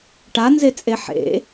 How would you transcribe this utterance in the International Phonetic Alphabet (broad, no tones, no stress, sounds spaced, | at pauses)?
ʈ a n z e t͡sʼ e ħ ḛ